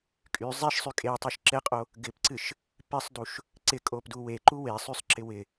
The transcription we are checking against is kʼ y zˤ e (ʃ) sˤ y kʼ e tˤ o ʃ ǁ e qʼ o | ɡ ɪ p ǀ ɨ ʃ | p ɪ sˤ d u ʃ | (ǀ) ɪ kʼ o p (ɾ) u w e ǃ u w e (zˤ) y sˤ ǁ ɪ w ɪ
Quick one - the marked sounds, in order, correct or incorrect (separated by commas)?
correct, correct, incorrect, incorrect